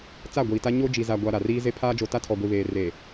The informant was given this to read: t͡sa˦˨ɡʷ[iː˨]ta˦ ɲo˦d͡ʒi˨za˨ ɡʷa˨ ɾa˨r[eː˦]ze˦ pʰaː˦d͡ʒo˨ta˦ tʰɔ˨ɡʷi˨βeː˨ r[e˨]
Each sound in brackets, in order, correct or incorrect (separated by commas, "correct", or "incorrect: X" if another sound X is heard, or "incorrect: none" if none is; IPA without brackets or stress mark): correct, incorrect: iː˦, correct